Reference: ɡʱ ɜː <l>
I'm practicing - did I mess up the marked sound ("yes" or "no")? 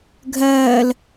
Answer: no